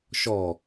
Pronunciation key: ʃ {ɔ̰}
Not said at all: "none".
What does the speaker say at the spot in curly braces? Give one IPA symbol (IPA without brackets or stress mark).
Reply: ɔ